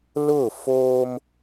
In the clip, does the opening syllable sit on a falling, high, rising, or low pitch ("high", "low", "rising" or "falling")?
falling